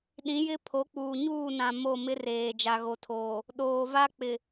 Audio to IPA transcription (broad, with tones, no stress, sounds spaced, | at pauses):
ɗ ĩ˨˦ j ɪ˦ pʰ o˨˦ k͡p uː˨ ɲ uː˦˨ n ã˨ m o˦˨ m ɪ˦ r eː˨ d͡ʒ a˨ ɣ o˨ tʰ oː˨ | ɗ oː˨ v a˦ k͡p ɪ˨